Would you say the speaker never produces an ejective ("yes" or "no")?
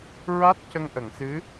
yes